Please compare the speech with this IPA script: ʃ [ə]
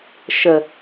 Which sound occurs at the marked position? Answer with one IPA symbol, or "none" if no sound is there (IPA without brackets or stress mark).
ə